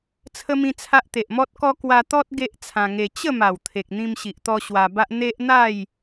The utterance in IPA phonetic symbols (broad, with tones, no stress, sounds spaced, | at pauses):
t͡sʰ ə˦ m ĩ˦ t͡sʰ a˦ ʔ t̪ e˨ ʔ m ɔ˦ t̚ k ɔ˦ k w a˧ t̪ ɔ˦ t̚ ɡ e˦ ʔ t͡sʰ ã˧ ŋ e˧ t͡ɕ ə˥˧ m a˨˩ w t̪ʰ e˨ k̚ n̪ ĩ˧ m ɕ i˨ ʔ t̪ ɔ˧ ɕ w a˧ b a˦ ʔ n̪ e˦ ʔ n̪ a˥˧ j